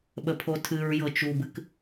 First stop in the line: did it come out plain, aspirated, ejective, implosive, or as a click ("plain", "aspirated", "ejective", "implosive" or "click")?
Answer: implosive